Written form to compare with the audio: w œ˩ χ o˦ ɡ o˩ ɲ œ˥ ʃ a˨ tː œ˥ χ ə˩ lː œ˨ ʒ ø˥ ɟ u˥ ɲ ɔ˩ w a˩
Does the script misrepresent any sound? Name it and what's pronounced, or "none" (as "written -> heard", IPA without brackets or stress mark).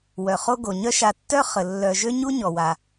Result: ɟ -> ɲ